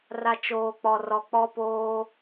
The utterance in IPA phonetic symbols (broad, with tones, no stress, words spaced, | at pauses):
ra˨ t͡ʃoː˨ k͡pɔ˨rɔ˨ k͡pɔ˦poː˦